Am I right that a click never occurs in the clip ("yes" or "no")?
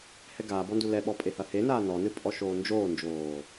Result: yes